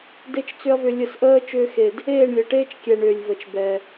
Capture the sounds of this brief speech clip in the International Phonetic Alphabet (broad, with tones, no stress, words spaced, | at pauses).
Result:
de˧t͡ʃ t͡sʏ˦ɐ̯vʏ˧ lʲə˧sʔəː˦ t͡ʃʏː˧xe˨d | eː˦˨ɳlʲə˨ʈeː˦t͡ʃkʲɛ˨ ɳʏː˨lʲvə˨t͡ʃbɛ˨